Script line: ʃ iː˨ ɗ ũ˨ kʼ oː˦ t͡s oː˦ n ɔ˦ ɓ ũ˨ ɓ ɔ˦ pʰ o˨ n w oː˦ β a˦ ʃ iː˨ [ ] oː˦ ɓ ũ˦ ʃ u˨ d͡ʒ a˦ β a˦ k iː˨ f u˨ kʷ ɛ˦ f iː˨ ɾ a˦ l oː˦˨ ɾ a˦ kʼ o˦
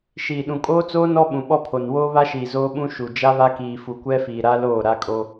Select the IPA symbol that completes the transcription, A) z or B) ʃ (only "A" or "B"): A